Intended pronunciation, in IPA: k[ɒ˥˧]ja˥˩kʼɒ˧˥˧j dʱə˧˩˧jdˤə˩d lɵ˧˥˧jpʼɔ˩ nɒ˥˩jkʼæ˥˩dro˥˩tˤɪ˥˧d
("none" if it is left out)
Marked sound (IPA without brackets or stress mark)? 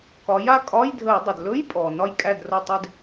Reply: ɒ˩˧